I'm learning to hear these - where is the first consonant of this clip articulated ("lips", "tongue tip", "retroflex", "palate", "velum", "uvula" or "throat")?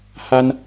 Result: throat